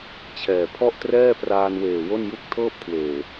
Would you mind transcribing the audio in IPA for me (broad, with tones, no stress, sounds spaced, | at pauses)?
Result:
t͡ɕʰ ɛː˨˩ pʰ ɔ˥˩ ʔ t r ɛː˥˩ p r aː˧ n w eː˨˩ w o˥˩ n j u˥˩ k̚ tʰ ɤː˥˩ p̚ kʰ w eː˨˩